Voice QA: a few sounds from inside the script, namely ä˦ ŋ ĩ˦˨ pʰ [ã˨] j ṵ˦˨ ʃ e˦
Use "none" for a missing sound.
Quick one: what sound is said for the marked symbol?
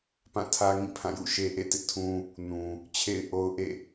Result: ã˦˨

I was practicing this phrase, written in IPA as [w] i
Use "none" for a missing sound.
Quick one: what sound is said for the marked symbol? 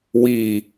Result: w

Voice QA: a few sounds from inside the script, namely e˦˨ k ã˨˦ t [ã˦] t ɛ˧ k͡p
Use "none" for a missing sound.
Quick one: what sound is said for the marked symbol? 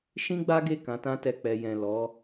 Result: ã˦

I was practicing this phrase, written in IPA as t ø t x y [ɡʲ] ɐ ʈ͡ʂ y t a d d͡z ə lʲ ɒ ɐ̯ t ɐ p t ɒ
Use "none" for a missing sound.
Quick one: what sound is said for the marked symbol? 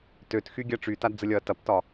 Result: ɡʲ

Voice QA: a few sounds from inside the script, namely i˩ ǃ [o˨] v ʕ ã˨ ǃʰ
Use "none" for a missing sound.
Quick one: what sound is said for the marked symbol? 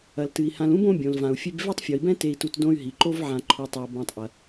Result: o˥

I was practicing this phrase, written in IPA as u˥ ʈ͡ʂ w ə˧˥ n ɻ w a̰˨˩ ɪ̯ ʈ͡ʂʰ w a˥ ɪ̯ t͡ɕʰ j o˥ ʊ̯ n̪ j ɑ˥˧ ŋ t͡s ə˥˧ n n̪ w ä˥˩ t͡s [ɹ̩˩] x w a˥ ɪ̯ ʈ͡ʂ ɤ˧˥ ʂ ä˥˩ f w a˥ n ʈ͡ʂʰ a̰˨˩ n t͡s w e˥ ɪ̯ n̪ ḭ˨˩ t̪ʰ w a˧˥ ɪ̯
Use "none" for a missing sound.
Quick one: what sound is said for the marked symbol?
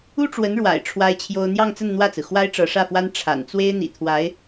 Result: ɹ̩˩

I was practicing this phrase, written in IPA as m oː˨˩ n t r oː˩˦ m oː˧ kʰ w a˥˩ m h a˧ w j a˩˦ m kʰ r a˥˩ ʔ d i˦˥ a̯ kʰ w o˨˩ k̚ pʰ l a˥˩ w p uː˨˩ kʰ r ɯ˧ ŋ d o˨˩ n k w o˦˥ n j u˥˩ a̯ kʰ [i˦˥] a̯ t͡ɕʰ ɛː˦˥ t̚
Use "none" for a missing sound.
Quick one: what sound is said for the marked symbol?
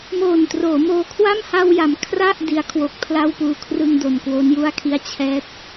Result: i˥˩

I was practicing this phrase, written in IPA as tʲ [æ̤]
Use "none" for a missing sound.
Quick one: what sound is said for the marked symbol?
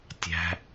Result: æ̤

